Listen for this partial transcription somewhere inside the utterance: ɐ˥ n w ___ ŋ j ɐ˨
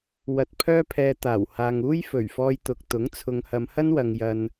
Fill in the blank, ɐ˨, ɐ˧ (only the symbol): ɐ˨